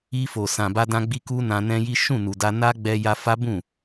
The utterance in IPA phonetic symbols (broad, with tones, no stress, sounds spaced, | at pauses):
i˧ f o˨ s ã˨ b a˧ d ã˧ ɡ͡b i˧ k u˦ n ã˧ n ɛ̃˦ j i˦ ʃ ũ˦˨ n u˨ d a˧ n a˦ ɡ͡b ɛ˧ j a˧ f a˦ b ũ˦˨